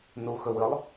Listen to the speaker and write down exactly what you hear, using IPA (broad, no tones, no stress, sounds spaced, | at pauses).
n u x ɵ w ɨ lˠ